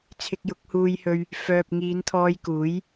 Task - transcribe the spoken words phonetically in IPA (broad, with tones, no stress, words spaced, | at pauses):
t͡sʰɪ˧k̚jʊ˨˥k̚huː˧jhɵ˧ɥ | fœː˨p̚ŋiː˨˧nt̪ʰɔː˧j kuː˨˥j